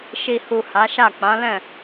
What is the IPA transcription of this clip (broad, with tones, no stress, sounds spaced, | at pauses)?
ʃ i˨ h u˨ h a˨˦ ʃ a˦˨ k͡p ã˨˦ l ɛ̃˦˨